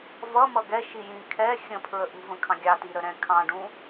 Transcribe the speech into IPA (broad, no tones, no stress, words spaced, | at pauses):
vʌmʌ ɡɛʃi jĩ kʰɛ xʲə̃pʰɹə ʔṳvə̃kʰɑ̃ ɡʲɑtiɾəɾɛ̃ kʰɑ̃ɖũ